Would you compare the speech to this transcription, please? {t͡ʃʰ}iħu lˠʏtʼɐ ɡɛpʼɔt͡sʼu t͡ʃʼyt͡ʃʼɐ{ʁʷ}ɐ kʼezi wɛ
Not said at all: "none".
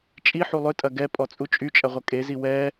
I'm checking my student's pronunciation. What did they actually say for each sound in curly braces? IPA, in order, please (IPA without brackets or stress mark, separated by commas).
t͡ʃʼ, ʁʷ